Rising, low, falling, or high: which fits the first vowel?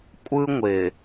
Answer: high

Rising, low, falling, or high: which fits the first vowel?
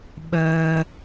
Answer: low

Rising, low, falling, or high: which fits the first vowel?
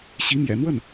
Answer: rising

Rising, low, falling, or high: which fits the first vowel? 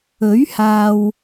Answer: rising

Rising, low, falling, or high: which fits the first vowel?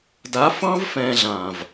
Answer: rising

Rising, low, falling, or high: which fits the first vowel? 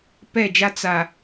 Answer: falling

